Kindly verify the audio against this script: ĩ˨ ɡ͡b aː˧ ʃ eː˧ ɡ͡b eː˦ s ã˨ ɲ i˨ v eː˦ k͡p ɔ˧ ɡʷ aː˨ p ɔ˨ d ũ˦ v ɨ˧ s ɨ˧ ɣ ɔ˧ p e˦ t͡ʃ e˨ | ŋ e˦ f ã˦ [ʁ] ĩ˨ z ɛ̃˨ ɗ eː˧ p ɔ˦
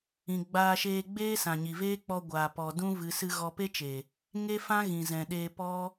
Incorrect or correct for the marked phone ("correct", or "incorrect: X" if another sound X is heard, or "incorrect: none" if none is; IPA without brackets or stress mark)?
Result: incorrect: ɣ